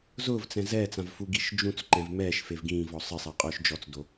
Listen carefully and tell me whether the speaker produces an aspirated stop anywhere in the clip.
no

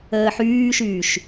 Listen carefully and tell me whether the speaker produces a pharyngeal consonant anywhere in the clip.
yes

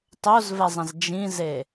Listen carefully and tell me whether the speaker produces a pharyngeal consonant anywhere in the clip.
no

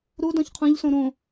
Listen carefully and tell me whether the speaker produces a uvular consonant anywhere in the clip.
yes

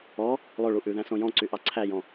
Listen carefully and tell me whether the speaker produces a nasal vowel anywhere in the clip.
yes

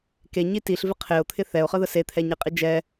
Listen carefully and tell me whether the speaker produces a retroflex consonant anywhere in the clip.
no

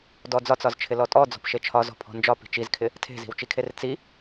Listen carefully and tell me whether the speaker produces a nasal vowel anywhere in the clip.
no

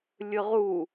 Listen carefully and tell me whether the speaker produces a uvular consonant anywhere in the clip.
yes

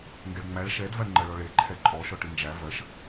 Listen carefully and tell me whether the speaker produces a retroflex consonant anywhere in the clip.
yes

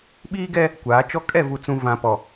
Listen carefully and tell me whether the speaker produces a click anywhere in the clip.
no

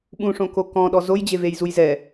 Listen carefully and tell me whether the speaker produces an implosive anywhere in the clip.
yes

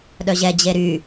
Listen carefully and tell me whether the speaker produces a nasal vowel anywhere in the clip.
no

